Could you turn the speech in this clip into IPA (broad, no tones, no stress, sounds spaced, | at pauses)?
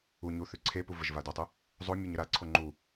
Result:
u ɲ u θ ʉ ǀʰ e p u v ə ʒ v a d o tˤ ʉ | zˤ o mʲ e ɲ ə ɾ a ǀʰ o ŋ͡ǃ u